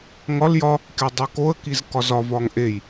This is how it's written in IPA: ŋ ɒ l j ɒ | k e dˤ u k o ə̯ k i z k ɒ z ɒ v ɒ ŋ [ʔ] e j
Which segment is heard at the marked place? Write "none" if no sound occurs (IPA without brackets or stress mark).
ʔ